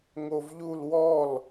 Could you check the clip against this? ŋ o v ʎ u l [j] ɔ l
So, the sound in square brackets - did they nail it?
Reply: no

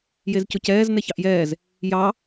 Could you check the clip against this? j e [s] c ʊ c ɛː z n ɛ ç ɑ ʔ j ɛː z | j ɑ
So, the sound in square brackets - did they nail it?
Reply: no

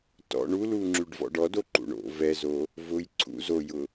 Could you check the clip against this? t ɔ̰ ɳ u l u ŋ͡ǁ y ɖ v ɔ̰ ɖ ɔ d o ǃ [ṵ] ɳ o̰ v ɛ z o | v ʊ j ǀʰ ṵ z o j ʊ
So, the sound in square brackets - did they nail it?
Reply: yes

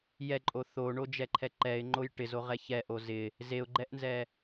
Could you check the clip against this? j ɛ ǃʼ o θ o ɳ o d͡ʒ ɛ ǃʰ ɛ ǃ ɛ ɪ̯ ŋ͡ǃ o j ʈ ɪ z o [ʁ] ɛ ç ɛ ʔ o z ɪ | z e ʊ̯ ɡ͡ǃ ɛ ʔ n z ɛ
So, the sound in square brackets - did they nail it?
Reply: yes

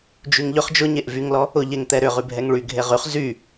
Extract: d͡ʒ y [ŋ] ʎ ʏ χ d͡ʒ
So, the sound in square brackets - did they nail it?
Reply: yes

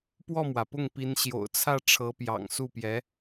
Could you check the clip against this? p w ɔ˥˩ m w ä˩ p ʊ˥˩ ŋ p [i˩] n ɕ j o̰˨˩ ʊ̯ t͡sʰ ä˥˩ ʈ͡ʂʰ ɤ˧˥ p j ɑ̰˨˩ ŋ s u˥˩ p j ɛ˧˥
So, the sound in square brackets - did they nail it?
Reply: no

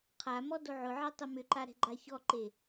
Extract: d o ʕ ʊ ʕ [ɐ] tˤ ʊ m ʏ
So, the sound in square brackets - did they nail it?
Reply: no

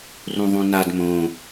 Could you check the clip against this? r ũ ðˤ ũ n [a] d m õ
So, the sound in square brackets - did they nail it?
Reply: yes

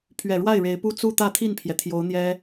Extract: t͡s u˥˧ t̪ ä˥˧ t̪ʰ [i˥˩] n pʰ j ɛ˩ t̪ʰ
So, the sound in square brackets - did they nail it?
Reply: yes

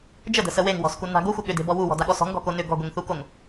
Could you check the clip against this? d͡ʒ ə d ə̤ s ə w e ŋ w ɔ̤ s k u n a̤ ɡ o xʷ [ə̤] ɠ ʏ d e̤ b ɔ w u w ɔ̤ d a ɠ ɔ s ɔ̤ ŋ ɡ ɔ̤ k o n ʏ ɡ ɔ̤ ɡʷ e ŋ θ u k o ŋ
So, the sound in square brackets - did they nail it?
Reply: no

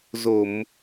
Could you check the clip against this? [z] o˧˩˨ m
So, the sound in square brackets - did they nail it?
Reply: yes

